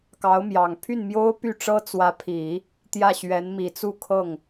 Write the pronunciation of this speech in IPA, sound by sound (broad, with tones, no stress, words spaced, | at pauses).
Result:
kɑ˧˥ʊ̯mjɑ˨˩ŋ pʰy˥˩nmjo˥ʊ̯py˥˩ʈ͡ʂɤ˥ t͡swä˧˥pʰi˨˩˦ | t̪jä˥˩ɕɥɛ˧˥n mi˨˩t͡su˥˧ kʰɤ˥˩ŋ